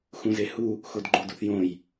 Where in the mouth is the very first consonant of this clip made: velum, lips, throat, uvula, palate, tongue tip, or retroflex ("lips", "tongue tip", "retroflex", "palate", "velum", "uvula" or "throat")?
velum